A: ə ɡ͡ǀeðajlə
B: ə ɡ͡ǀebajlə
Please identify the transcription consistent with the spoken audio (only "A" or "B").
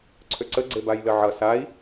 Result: B